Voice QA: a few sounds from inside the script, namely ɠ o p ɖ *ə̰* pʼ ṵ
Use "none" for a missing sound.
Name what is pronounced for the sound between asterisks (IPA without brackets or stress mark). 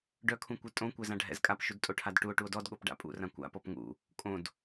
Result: a̰